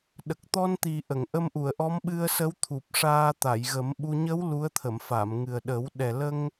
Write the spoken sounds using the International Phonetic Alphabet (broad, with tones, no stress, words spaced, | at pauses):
ɗə˨˩k̚t̪ɔ˧nt̪i˨˩ ʔə˨˩˨ŋʔə˧mʔu˨˩˨ə̯ʔɔ˧˥m ɓɨ˧ə̯sə˧˥wt̪ʰu˨˩p̚ ʂaː˧t̪a˨˩˨jɣə˨˩˦mɓu˧ ɲə˧˥w lu˧˥ə̯t̪ʰə˨˩˨mfa˨˩˨mŋɨ˨˩ə̯ ɗə˨˩˦w ɗɛ˨˩lə˧ŋ